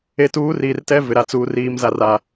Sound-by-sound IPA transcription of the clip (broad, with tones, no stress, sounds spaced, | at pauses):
e˨ t uː˨˦ r iː˨ r t ɛ˦ v ɪ˨ ɾ a˨ t͡s uː˨ r iː˨ m z a˨ r a˨